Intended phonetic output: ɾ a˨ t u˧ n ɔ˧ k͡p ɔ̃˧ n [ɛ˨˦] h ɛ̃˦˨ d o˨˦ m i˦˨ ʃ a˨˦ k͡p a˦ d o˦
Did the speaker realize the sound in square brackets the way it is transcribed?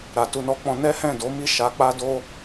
no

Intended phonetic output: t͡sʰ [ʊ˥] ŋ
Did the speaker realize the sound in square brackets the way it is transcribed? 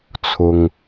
no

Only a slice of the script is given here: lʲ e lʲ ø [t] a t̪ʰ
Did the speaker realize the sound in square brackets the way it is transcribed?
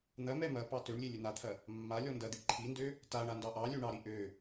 no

